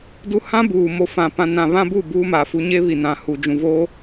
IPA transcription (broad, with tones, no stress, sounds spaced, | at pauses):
d u˦ h ã˦ b uː˨ m o˨ f ã˨ p ã˨ n ã˨ β ã˦ b u˦˨ b uː˦ m a˨ f u˦ ɲ e˦ β i˨ n ã˨ h u˨ d͡ʒ ũ˨ v oː˦